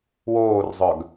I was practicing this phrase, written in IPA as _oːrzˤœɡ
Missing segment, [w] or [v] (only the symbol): w